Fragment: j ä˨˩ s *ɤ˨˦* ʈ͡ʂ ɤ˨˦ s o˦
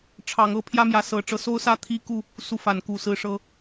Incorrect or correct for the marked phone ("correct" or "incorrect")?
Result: correct